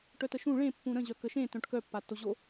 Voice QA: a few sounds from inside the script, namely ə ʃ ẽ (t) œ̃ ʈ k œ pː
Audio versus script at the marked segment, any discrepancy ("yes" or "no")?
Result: no